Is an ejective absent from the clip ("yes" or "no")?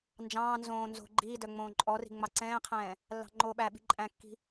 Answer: no